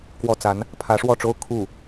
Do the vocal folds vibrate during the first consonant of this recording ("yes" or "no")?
no